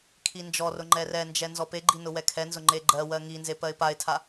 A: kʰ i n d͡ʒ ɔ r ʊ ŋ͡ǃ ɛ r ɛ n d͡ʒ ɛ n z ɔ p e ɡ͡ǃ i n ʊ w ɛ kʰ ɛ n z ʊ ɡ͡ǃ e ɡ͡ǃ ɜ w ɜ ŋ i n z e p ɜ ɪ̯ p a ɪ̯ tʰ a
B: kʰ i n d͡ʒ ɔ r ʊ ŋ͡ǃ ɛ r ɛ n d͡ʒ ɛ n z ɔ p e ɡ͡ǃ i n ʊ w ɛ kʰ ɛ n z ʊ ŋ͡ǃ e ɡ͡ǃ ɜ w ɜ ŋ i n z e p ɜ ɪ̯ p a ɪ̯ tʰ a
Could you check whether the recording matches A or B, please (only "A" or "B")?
B